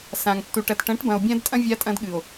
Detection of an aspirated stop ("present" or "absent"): absent